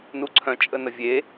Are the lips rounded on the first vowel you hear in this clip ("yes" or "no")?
yes